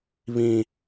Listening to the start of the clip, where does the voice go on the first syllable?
high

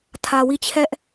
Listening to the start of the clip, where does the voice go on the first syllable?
low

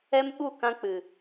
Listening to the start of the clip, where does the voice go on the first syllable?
high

